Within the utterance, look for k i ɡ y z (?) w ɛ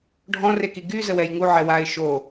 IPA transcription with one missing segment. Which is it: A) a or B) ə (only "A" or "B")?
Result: B